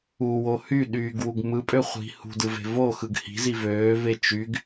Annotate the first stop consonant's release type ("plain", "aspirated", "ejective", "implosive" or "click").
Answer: implosive